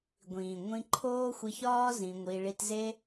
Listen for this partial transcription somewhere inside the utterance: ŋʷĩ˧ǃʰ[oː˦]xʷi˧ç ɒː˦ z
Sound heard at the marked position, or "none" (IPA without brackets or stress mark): oː˦